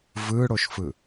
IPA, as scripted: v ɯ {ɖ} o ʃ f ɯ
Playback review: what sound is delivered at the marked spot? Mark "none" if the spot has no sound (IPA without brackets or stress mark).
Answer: ɽ